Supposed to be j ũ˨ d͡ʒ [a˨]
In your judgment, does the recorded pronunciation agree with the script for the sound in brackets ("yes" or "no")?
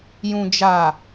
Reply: yes